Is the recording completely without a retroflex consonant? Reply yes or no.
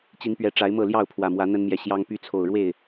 no